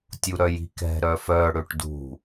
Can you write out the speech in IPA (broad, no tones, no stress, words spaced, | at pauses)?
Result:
tʲuɾœji̤kɛ̤ ɾœfœɽøʈ dṳ